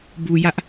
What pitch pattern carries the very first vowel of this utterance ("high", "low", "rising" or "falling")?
low